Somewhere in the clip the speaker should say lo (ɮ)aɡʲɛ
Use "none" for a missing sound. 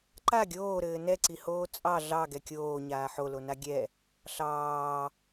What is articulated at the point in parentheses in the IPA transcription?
n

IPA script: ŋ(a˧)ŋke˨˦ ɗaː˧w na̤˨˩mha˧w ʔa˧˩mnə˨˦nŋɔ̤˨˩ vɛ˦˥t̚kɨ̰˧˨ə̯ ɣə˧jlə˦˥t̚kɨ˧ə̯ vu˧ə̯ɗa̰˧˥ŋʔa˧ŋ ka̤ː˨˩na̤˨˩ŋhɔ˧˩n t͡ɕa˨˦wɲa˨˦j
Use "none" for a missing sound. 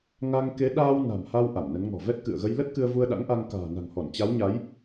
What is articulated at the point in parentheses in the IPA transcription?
a˧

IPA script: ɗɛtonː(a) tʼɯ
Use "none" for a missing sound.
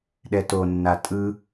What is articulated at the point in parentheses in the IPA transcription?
a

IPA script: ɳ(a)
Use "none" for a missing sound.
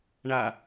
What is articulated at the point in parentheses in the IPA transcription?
a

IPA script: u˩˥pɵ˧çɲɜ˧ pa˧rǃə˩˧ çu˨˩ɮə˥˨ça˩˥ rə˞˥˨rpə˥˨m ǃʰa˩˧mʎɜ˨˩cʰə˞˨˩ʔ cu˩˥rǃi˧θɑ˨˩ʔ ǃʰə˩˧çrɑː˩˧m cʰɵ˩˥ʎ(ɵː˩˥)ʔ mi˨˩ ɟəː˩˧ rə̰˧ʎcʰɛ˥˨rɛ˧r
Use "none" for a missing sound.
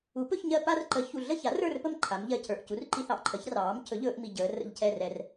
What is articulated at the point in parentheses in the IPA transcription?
ɵː˩˧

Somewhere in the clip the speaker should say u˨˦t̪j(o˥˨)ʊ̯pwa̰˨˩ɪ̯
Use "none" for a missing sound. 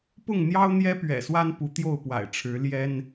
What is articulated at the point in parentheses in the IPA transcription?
o˥˨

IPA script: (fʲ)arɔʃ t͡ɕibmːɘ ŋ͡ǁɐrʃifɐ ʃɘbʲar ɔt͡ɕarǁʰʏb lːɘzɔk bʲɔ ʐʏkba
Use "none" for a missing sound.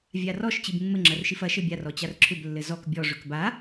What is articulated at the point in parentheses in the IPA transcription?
vʲ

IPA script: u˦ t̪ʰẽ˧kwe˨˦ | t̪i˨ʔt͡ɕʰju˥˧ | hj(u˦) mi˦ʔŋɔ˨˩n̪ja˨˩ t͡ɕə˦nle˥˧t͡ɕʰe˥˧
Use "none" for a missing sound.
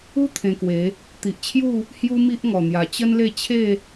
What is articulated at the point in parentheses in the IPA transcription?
u˦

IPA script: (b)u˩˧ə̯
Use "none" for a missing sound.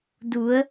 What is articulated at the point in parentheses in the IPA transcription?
d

